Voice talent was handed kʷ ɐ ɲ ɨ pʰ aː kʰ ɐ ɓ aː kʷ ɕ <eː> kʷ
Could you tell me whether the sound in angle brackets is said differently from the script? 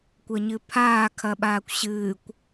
yes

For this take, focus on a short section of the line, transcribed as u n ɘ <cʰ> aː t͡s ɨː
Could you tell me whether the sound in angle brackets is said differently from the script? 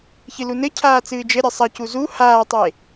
no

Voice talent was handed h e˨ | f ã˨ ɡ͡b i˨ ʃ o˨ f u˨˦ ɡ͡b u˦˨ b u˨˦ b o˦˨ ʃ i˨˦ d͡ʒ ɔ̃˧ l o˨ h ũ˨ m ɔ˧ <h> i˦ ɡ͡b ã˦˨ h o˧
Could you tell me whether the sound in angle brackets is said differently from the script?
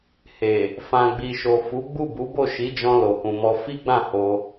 yes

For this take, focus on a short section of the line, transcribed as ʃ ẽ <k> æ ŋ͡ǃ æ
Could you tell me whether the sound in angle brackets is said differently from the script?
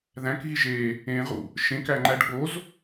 no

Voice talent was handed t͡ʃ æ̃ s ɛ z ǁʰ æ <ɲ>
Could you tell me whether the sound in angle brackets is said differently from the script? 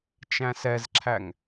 yes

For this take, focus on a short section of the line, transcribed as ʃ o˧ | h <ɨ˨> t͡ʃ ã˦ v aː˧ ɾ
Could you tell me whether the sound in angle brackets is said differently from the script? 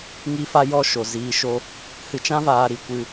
yes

